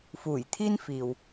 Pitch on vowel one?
low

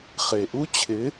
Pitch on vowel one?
low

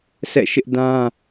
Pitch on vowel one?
falling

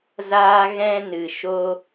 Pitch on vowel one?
high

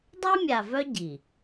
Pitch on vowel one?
high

